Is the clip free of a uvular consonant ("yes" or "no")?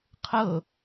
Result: no